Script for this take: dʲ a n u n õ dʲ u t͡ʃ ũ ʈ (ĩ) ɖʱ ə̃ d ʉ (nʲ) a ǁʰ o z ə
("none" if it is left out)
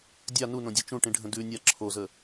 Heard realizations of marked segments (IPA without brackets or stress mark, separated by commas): ĩ, nʲ